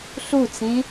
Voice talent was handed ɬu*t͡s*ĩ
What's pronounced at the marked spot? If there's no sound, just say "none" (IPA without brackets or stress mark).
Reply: t͡s